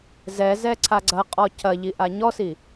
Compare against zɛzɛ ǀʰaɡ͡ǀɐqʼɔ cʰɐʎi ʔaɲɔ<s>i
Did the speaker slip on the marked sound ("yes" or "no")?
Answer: no